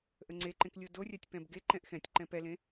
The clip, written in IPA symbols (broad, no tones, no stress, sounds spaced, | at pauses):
ʔ ə ŋ͡ǀ e ǃ ẽ k lʲ o d o rʲ a tʲ p ɛ̃ b ɡ e ǃ ɛ̃ ʔ x ɛ̃ tʲ ǃ ɛ̃ p ɛ l ẽ